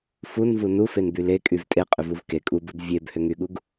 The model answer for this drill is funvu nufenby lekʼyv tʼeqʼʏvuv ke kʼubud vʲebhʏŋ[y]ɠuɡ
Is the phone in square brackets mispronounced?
no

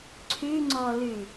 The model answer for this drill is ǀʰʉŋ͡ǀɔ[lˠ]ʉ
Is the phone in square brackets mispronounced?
yes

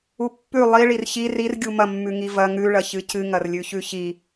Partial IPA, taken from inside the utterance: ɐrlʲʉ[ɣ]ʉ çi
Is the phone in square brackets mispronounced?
yes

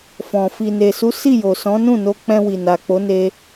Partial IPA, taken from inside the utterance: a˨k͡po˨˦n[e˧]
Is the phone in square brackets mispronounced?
no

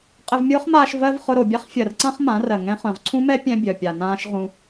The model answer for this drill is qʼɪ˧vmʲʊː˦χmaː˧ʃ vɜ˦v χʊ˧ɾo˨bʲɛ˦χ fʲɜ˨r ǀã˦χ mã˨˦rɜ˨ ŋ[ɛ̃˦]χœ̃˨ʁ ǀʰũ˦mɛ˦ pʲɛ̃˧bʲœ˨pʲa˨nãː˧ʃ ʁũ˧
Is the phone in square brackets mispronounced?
yes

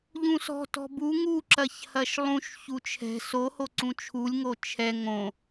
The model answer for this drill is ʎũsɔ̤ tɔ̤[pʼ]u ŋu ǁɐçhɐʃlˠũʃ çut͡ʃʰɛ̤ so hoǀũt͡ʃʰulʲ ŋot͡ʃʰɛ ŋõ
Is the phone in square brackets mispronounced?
yes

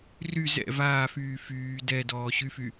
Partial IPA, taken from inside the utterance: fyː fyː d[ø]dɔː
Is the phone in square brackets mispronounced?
yes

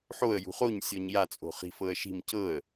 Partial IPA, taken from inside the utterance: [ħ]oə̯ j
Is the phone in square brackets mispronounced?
no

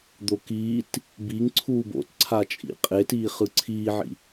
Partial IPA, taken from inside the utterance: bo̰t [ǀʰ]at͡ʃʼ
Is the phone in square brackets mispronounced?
no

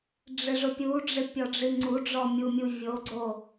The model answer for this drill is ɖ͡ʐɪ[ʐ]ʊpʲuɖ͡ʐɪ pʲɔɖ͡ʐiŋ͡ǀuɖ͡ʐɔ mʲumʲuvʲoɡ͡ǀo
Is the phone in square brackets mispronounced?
no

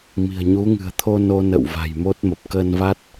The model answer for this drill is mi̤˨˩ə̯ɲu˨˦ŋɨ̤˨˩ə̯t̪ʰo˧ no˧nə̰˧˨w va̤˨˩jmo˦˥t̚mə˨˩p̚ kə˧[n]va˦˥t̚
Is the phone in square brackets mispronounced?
no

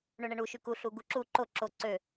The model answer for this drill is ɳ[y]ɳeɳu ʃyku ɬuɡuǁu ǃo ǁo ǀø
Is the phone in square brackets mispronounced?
yes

